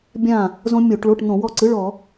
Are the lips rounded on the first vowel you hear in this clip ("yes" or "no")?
no